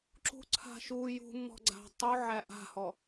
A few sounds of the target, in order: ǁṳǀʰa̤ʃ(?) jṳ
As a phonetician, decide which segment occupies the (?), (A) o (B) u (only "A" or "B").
B